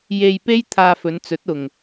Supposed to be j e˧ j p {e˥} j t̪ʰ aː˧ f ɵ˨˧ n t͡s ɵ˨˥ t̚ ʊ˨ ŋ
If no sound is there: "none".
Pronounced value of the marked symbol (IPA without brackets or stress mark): e˥